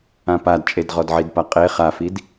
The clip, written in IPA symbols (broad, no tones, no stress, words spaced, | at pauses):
ãpadt͡ʃʼed ʁɔdʕidpaqʼe χafid